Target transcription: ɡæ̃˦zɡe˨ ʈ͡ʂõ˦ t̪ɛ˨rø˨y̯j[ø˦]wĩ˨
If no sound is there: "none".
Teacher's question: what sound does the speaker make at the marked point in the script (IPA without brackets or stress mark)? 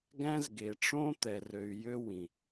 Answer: ø˦